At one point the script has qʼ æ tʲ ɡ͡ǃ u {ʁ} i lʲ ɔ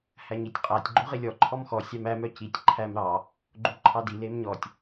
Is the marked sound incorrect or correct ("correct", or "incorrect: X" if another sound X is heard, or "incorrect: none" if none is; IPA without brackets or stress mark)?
correct